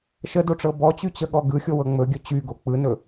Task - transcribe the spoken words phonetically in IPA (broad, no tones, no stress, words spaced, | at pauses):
ʃədoʈ͡ʂɤ bɔt͡ɕyt͡ɕəɠɔ ɡɯxʲowɤ ŋ͡mɵɡʲɵ t͡ɕyɡo k͡pɯnɵ